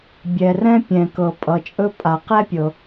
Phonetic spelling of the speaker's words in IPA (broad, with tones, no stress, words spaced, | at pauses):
bʲɛ˩rɛ̃˥ pʲɛ̃˩kɤ˩ pʼʌ˩t͡ʃʼɵ˥pʼa˩ qɛ˥pʲɤ˩